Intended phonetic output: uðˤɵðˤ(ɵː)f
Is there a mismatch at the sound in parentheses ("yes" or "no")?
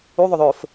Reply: no